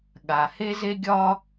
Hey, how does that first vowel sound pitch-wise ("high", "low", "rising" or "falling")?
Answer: low